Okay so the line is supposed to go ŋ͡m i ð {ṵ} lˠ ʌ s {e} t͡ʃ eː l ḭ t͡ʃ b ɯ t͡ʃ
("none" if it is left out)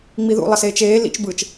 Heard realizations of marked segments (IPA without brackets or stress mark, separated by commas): ṵ, eː